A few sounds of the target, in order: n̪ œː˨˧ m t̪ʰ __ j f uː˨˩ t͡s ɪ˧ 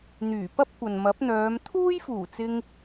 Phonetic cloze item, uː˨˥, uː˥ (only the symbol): uː˥